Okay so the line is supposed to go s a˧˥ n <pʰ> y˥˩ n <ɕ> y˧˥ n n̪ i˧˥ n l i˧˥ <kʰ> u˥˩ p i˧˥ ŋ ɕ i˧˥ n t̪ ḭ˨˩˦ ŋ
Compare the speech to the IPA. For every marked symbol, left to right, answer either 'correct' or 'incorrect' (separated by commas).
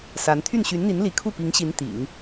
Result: incorrect, correct, correct